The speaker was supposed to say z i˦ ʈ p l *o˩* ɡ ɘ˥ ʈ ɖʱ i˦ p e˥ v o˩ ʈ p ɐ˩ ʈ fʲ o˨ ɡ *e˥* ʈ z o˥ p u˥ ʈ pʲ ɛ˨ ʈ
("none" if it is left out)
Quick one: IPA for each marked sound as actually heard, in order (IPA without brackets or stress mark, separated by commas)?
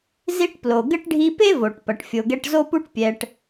o˩, ɛ˥